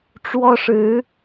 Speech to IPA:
ʈ͡ʂ w ɔ˥ ʂ ɻ̩˧˥

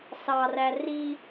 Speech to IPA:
s ɑ r æ r i

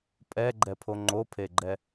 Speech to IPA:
pʼ ɛ ɡ͡ǃ ɛ pʰ o ŋ͡ǃ o pʰ e ɡ͡ǃ ɛ

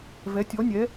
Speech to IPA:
v ɛ˩˧ tʲ ɔ˩˧ nʲ ɛ˩˧

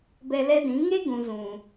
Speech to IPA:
b ɛ˧ l ɛ˦ d ĩ˨˦ ŋ e˦ ɡ ũ˨ z ũ˨

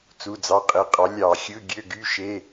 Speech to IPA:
t͡s u˩˧˩ d͡z ɑ˩˧˩ qʼ e˩˧˩ qʼ ɑ˩˥ lʲ ɑ˧˩˧ xʲ ɯ˧˥˧ ɡʲ ø˧˥˧ ɡ y˧˥˧ ʃ e˧˥˧

